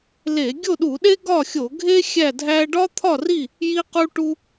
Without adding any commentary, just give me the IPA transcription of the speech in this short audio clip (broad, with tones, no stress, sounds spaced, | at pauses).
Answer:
l e˧˩˧ ɡʲ o˥˨ ɗ u˧˩˧ ɗ e˥ ɡ ɒ˥˨ xʲ o˧˩˧ ɡʱ e˥ xʲ æ˥˨ dʱ æ˥ ɖ ɒ˥ t̪ʰ ɒ˥˨ r i˥˨ | j i˥ q u˥ ʈ u˥